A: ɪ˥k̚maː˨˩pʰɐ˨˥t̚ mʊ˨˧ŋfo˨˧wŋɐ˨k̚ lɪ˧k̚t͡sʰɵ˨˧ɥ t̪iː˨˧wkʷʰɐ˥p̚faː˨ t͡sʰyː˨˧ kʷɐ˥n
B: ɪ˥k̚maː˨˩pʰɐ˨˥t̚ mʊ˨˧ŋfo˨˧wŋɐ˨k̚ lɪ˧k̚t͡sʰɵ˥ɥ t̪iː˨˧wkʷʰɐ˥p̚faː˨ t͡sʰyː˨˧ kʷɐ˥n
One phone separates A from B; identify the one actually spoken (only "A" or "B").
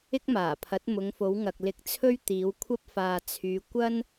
B